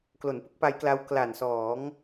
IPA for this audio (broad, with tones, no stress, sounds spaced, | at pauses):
k l o˩˦ n p ɯ˦˥ k̚ p a˦˥ j k l a˦˥ w k l a˨˩ n s ɔː˩˦ ŋ